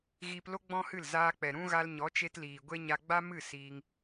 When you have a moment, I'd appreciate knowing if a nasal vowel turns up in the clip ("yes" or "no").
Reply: yes